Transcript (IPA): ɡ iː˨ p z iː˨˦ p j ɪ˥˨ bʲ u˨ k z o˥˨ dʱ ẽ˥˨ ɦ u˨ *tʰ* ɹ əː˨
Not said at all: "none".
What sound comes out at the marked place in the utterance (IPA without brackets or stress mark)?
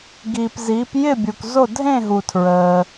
tʰ